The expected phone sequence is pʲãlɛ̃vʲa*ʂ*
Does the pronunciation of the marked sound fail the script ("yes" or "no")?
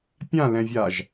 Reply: yes